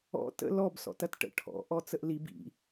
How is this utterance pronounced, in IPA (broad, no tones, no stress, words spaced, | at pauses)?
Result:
ɔ̰ tə̰ lɔbsɔ̰t ɐtʈə̰ ʈʰɔ̰ʔɔ t͡səʔlib ḭ